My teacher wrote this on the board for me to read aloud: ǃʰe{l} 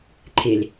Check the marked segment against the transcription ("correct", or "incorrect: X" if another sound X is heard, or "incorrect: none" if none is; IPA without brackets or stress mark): correct